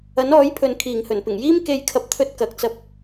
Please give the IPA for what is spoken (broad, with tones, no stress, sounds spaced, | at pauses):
ɐ˨˥ n ɔː˨˥ j pʰ ɵ˨ n kʰ iː˨˩ ŋ h ɵ˨˩ n p ɪ˨˩ ŋ j iː˥ m k e˧ j kʰ ɐ˧ p̚ t̪ʰ ɵ˧ t̚ k ɐ˨ k̚ t͡s ɐ˧ p̚